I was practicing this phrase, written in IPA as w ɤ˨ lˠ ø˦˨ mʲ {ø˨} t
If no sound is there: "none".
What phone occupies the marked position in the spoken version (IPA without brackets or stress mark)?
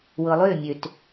ø˨